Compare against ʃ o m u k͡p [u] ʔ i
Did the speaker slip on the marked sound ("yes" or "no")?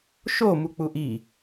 no